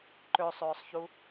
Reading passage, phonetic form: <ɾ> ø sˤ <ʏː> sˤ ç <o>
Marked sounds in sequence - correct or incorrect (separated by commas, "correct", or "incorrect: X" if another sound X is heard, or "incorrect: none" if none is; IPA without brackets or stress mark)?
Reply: incorrect: ǃ, correct, incorrect: u